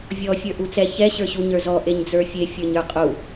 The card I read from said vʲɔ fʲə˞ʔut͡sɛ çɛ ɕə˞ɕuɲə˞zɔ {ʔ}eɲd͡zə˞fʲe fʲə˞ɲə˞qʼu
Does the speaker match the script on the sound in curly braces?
yes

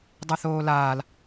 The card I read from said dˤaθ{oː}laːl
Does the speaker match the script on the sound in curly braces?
yes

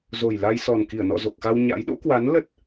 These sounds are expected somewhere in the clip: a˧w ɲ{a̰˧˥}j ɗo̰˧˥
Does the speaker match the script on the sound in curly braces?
yes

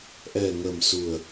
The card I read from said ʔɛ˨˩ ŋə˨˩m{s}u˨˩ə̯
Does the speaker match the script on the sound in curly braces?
yes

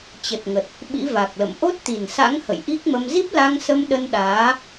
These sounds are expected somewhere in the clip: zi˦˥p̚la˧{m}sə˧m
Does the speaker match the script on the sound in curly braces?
no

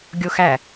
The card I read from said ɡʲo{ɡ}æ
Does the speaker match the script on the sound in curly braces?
no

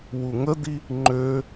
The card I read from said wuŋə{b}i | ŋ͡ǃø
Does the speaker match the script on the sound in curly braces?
no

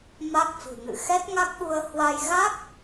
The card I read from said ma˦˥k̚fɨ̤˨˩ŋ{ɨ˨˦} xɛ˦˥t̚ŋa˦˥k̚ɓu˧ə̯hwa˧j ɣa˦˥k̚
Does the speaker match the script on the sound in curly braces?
no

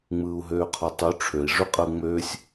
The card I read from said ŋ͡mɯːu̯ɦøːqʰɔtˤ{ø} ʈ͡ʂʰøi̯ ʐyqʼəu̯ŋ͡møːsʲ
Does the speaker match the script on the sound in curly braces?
no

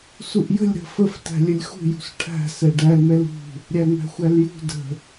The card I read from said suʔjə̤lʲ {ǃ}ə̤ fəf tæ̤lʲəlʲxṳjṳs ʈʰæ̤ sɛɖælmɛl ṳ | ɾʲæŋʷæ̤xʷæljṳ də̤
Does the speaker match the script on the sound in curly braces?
no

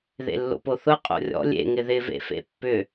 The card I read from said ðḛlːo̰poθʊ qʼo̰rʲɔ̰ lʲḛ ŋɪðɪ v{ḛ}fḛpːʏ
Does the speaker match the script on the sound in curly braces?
yes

